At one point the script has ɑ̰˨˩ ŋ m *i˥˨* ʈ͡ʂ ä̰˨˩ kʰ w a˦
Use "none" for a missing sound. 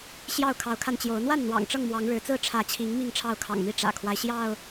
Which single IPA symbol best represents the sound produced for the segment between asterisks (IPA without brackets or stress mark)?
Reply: i˥˨